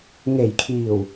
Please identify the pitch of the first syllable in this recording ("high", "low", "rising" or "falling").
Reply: low